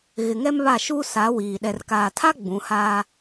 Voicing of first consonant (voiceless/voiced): voiced